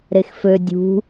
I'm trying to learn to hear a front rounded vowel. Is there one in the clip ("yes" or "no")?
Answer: yes